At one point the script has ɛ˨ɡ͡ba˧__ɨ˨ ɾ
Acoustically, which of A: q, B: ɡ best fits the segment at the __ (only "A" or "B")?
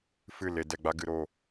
B